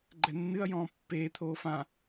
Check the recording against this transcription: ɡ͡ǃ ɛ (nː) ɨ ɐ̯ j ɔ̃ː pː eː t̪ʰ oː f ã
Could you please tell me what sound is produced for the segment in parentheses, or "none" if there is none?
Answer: nː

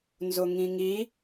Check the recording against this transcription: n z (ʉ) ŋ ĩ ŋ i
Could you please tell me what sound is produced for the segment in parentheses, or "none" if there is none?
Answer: ʊ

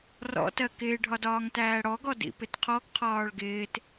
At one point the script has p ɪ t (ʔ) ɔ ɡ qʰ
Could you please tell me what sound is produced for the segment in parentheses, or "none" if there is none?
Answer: qʰ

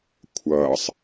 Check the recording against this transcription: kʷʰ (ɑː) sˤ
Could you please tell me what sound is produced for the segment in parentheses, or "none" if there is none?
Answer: ʌː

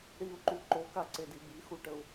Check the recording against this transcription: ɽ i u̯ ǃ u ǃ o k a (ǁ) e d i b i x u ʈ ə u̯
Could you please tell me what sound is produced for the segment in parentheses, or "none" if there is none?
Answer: ǀ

